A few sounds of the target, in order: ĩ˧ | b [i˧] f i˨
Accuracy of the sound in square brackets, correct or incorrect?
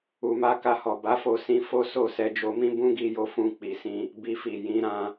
correct